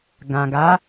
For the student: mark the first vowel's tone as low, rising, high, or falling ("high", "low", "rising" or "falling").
low